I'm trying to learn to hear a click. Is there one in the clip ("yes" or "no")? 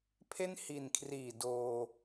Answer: no